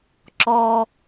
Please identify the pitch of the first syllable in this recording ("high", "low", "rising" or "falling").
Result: low